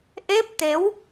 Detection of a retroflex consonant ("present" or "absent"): absent